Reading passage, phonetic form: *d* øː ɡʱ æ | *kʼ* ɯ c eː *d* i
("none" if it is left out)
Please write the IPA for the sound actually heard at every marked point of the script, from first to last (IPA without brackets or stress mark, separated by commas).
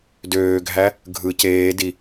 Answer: d, ɡʱ, d